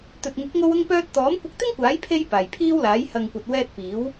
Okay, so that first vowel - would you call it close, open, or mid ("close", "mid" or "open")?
mid